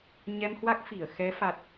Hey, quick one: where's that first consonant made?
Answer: palate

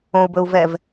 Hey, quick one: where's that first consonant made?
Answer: lips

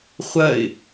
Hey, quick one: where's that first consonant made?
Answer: uvula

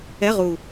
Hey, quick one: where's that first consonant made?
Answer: uvula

